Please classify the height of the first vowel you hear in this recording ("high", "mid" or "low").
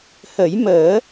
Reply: mid